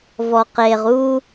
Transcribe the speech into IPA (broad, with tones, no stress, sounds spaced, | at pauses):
v ɔ˨ q e˨ ʁ u˦